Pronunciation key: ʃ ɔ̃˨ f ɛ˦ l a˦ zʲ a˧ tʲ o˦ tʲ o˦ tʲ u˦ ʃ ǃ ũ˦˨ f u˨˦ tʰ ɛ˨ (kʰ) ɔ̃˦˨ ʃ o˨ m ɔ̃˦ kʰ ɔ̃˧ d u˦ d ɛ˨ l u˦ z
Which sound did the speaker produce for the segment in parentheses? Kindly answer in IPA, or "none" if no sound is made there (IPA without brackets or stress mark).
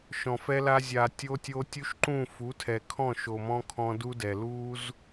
kʰ